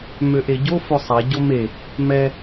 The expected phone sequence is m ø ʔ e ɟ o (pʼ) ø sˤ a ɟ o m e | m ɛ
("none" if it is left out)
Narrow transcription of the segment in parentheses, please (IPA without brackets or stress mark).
f